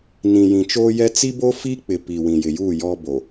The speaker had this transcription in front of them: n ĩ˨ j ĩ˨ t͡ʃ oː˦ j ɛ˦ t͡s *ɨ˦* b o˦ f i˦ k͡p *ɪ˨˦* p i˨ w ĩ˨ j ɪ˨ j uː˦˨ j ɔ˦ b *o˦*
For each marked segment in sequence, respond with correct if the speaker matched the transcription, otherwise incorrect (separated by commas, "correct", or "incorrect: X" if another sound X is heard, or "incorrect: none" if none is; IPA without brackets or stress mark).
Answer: incorrect: i˦, incorrect: ɪ˨, incorrect: o˨